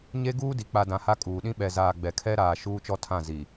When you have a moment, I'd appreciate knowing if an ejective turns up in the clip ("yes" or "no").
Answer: yes